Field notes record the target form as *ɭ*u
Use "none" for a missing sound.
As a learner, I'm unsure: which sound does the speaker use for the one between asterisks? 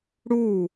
ɽ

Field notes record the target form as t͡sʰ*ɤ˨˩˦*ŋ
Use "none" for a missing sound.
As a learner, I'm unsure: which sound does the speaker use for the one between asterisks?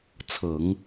ɤ˨˩˦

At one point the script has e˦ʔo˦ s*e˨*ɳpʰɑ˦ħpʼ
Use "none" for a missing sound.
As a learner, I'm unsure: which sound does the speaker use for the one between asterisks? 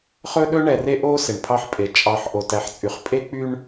e˨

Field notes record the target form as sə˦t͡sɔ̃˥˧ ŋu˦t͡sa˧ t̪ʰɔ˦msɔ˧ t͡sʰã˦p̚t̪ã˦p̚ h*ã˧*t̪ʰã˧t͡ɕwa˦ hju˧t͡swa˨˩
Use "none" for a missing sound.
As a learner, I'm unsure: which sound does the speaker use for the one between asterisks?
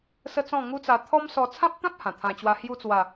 ã˨˩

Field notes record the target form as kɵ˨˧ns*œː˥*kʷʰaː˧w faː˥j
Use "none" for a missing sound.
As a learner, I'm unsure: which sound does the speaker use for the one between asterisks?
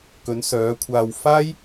œː˨˧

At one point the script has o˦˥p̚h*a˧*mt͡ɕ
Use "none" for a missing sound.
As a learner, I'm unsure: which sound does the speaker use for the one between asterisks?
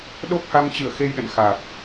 a˧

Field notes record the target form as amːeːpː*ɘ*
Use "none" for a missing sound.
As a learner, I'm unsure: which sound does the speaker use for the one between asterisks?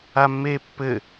ɘ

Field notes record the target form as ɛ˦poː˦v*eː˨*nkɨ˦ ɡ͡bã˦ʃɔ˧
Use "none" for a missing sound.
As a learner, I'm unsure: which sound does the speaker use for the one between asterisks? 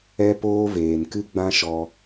eː˨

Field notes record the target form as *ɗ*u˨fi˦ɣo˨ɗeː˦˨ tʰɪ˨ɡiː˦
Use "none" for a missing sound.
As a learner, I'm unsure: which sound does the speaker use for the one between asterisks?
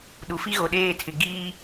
ɗ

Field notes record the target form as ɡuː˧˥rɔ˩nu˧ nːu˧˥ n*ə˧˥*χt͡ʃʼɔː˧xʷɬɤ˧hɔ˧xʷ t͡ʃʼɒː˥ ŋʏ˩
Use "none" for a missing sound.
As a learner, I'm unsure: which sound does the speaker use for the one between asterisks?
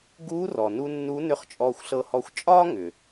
ʏ˧˥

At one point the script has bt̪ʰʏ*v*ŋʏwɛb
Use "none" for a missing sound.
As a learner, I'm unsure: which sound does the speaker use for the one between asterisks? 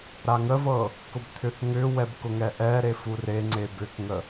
θ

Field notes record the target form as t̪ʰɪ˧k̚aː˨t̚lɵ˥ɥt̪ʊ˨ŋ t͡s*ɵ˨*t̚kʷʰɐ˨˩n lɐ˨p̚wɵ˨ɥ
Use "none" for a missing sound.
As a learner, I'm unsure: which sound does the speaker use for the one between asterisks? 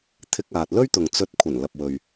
ɵ˧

